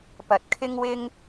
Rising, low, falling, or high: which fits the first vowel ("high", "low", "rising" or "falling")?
low